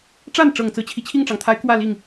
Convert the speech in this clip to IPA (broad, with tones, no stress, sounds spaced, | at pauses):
ʈ͡ʂ a˥˩ n ʈ͡ʂ ɤ˨˩ ŋ t͡s ɹ̩˦ t͡ɕʰ i˩ t͡ɕʰ i˥˩ ŋ ʈ͡ʂ ɑ˩ ŋ t̪ʰ a˧˥ ɪ̯ k w ä˥˧ l i˥˩ ŋ